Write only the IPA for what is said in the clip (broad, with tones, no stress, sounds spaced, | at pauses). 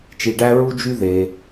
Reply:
t͡ʃ i˧ ɖ æ˦ ɹ u˦ d͡ʒ y˦ ð e˧